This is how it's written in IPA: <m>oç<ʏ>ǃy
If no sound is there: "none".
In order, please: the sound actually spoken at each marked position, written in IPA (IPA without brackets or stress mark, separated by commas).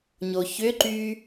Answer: ɲ, ʏ